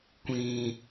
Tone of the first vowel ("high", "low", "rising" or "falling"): high